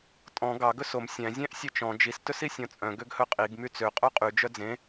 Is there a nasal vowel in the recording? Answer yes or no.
yes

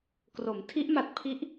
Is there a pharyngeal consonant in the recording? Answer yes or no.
no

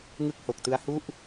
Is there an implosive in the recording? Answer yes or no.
no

